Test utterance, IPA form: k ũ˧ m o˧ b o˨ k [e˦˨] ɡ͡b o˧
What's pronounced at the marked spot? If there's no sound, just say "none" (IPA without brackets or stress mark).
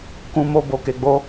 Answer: e˨